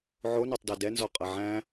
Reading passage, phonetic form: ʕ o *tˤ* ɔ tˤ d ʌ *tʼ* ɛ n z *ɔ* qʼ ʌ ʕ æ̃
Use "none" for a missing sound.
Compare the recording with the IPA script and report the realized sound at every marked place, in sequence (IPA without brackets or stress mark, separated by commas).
n, d, ɔ